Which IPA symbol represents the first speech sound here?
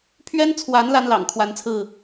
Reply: pʰ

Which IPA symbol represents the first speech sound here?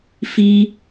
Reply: f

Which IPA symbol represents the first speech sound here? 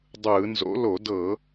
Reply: dˤ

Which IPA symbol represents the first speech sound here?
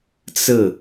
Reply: t͡s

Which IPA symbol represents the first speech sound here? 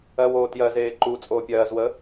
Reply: ɜ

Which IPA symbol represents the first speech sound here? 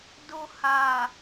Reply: d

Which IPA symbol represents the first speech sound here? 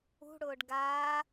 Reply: ṳ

